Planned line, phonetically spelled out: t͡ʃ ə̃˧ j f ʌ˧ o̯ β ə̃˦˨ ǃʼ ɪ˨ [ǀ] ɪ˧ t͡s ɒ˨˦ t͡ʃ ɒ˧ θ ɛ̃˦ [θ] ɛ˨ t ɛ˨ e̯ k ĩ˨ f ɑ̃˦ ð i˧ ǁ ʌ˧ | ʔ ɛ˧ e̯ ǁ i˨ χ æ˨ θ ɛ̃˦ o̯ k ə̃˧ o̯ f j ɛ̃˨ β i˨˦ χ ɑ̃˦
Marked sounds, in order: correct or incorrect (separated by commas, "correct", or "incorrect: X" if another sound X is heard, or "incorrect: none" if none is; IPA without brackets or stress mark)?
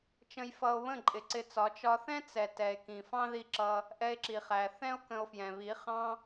correct, incorrect: t͡s